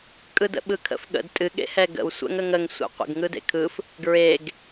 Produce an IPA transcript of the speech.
kʼ ɯ d ə̰ ɓ ɯ kʰ ə̰ f ɠ ə̰ d tʼ ɨ ɠ ḛ h ɛ ɡ ə̰ w sʷ ɛ̰ ŋ ə ŋ ə ŋ sʷ ɛ̰ qʷ ə̰ ɡ ŋ ɯ d ḛ kʰ ɯ f | ɡ ɹ e ɡ

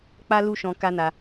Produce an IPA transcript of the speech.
k͡p a˦ l u˦ ʃ ɔ̃˧ k a˦ n a˧

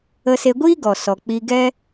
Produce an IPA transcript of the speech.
ə˧ s e˧ ɡʷ iː˦ ɡ ɔ˨ s ɔ˨ k͡p i˧ ɡ ɛ˦

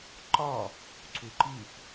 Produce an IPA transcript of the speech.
ǃ ɒ | ǀ u ǃ i p

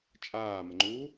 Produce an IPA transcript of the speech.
t͡ʃʼ aː m ə ŋ͡ǃ u

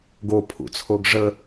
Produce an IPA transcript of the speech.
ɡ o pʰ ṵ t͡sʰ o ɡ ʐ ə

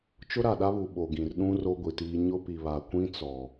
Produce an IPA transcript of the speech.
t͡ʃ ʊ˦ ɾ a˨ ɗ a˦ β u˨ ɓ o˨ ɡ ĩ˨ r ɗ ũ˦ r o˦ ɡʷ i˨ t iː˦ ɲ ʊ˦ p i˨ β a˨ kʷ ĩ˦ t͡s ɔ˨

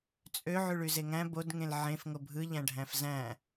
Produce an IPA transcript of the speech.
t͡sʼ ø ʕ y ɭ y z e ŋ æ̃ b o d ŋ ẽ l ʕ ẽ f ŋ o bʱ ɯ ʎ æ̃ ɖʱ æ̃ f z æ̃

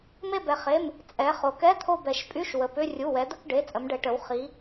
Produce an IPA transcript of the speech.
m e˦˨ b ɛ˩˧ χ e˩˧˩ m | t͡sʼ ɛ˩˧ χ o˩˧ k ɛ˧˥˧ t̪ʰ o˦˨ b ɛ˩˧ ʃ pʼ y˧˥˧ ʃ w ə˩˧˩ p ʏ˧˥˧ rʲ u˩˧˩ w ɛ˩˧ d̪ ə˦˨ k ɖ e˩˧˩ t͡sʼ ə˩˧ m ɖ ɛ˩˧ ʈ ə˩˧ w χ i˩˧

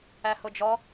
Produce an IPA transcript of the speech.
æ h ʊ d͡ʒ ɔ

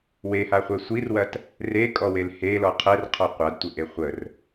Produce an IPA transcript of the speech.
w e h a χʷ ɛ sʷ i r w ɐ t | r e kʼ ɔ w e l h e l ɔ qʰ ɛ r qʰ ɔ qʷ a d tʷ ə ʔ e χʷ ə r

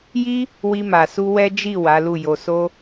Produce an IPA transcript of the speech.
j i˦ | w i˧ m a˨ s u˧ w ɛ˦ d͡ʒ i˦˨ w a˨˦ l u˦˨ j o˧ s o˦

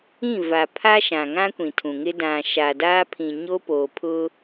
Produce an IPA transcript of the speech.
ĩ˦˨ v a˨ pʰ a˦ ʃ ã˨ ŋ ã˦ kʷ ĩ˨ tʰ ũ˨ ŋ ɪ˦ d ã˨ ʃ a˨ d aː˦ pʰ ĩ˨ ɲ o˦ p oː˨ pʰ ʊ˦

